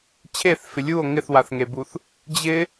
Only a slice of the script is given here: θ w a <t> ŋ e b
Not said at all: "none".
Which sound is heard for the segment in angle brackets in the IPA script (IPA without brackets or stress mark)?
θ